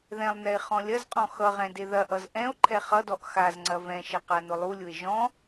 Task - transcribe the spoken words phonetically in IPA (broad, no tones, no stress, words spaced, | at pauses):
ðɛ̃lˠnɛe̯ χɔ̃lʲɐzqʼɔ̃ xʌʁɛ̃ deðɐʔʌz ʔɛ̃o̯ ǃʰɛχʌdɔʔ xazŋ͡ǀɐ vɛ̃ʃɐ qanʊlˠulʲʊe̯ ʒɔ̃